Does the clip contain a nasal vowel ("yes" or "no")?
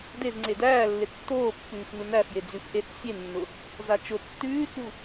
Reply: no